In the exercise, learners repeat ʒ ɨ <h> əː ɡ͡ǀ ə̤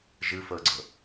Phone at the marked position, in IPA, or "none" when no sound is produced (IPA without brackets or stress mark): f